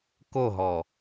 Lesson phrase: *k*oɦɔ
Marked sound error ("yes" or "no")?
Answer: no